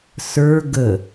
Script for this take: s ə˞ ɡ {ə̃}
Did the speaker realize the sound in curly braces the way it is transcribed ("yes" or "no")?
no